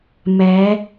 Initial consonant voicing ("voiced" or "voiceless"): voiced